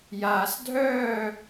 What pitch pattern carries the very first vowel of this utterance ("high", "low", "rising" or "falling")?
low